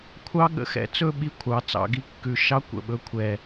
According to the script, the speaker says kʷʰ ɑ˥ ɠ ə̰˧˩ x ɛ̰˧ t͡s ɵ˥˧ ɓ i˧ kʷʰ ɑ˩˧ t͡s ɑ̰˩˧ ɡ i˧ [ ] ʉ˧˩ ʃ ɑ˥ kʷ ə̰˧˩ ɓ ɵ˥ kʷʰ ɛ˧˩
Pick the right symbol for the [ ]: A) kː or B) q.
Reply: A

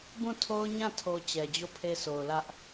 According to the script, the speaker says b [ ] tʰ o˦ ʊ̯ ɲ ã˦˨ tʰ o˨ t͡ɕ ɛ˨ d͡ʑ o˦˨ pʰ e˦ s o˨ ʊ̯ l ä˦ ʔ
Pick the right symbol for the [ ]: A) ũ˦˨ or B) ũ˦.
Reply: A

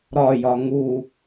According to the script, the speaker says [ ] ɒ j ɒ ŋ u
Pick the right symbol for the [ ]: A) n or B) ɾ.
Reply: B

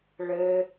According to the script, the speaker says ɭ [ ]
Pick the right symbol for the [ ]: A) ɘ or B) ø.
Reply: A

